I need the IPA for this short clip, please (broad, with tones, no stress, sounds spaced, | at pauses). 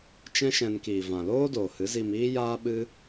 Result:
t͡ʃ ɛ̃˦ ʃ ɛ̃˧ n k iː˨ v ã˨ l oː˦ d oː˨ h ɨ˨˦ z i˧ m iː˦ j aː˦ ɓ ɨ˦